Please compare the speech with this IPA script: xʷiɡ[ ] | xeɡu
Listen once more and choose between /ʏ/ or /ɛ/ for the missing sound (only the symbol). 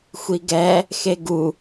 ɛ